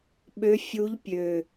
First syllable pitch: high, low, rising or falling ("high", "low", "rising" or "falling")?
rising